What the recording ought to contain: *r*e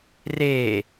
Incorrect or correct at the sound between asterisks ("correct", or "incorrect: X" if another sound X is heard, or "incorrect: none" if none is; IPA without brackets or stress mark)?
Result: correct